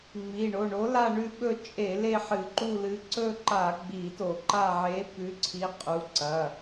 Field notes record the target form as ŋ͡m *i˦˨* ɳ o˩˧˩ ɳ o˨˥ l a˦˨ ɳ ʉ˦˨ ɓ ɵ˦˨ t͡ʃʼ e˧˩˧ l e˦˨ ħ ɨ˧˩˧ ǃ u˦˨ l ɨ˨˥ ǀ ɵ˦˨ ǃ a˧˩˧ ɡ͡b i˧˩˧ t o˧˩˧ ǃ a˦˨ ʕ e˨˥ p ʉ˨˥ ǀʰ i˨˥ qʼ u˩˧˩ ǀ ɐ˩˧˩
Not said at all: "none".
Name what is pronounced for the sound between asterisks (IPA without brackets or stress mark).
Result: i˩˧˩